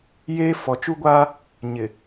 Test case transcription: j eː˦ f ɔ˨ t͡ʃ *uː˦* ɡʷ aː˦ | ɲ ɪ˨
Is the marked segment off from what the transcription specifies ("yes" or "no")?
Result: yes